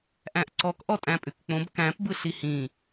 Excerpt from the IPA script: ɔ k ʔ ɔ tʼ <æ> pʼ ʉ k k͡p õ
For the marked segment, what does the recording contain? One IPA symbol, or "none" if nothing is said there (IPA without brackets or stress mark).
æ̃